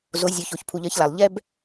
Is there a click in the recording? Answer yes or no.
no